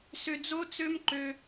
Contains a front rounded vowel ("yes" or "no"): yes